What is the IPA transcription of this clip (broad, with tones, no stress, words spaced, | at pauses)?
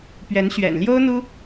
pɥɛ˧˥nɕɥɛ̰˨˩n ljo˥ʊ̯n̪u˥